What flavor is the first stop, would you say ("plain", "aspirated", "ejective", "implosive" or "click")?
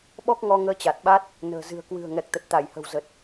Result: implosive